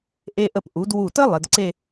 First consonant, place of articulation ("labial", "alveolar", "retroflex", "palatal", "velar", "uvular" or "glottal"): glottal